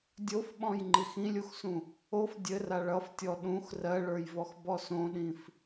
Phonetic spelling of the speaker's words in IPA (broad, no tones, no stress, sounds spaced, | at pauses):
dʲ o f ɓ ɔ̃ j ŋ͡ǃ i x ĩ lʲ u x s ũ | o f dʲ ɘ r a ɭ ʌ f tʲ ɔ ɗ ũ x r ɜ ɭ ə˞ j v ɔ x b ɔ s õ ɗ ĩ f